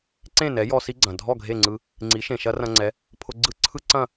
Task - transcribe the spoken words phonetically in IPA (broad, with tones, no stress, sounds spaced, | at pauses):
ǀ ẽ˥˩ n ɛ˩˥ j ɔ˧ s i˥ ɡ͡ǀ ɐ̃˩ dʱ ɔ˥˩ ɡʱ e˥˩ ŋ͡ǀ ɯ˧ | ŋ͡ǀ i˩˥ ʃ ẽ˩ ʃ ɐ˥ r ɐ̃˧ ŋ͡ǀ ɛ˩˥ | pʰ ʊ˧ ɡ͡ǀ ɯ˥˩ ǀʰ ɯ˥ ǀ ɐ̃˥˩